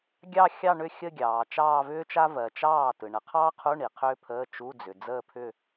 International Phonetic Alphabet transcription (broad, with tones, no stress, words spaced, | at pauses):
ɡʲɑ˥˧xʲɑ˥˧ ɳʏ˥˩ xʲə˥˧ɡʲɑː˨ t͡ʃɑː˥˧vʏː˥t͡ʃa˥ vɜ˨t͡ʃɑː˥˩ tɯ˨ ɳə˨qʰɑː˥qʰu˧˥˧ ɳi˨qʰʏː˥pʰəː˧˥˧ t͡ʃu˧˥˧d͡zʏ˨ d͡zəː˥˧pʰʏ˥˧